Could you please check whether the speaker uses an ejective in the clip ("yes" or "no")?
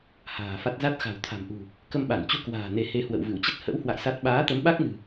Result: no